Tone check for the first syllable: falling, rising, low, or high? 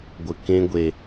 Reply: low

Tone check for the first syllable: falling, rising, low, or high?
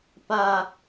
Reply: high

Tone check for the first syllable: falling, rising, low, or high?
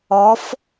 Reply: rising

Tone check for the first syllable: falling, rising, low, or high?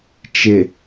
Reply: low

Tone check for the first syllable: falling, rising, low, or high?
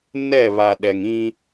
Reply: falling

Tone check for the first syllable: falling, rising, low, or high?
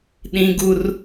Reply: high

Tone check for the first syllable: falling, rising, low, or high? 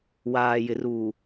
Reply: low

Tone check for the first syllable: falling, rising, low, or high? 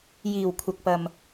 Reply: low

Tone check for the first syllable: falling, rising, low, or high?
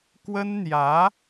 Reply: high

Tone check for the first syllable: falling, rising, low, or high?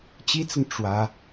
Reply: high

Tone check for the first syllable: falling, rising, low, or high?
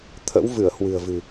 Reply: rising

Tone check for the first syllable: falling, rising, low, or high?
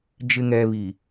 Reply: low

